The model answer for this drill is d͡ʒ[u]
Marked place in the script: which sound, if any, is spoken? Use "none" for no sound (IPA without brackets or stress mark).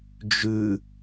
ʉ